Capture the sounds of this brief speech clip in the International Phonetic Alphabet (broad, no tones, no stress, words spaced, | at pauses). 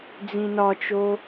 d͡zĩnɒt͡ʃo